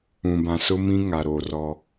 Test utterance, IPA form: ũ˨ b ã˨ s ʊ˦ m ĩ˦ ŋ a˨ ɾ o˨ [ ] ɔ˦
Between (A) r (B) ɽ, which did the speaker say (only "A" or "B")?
A